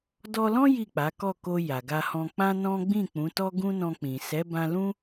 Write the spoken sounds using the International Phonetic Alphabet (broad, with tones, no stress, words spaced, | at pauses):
dɔ˧lɔ̃˦ ji˦˨k͡pa˨˦kɔ˦˨ko˧ ja˨ɡa˧hɔ̃˧ k͡pã˦nɔ̃˦ ɡ͡bĩ˦˨k͡pũ˨˦tɔ˦ ɡũ˦nɔ̃˧k͡pĩ˨ sɛ˨˦bã˧lũ˦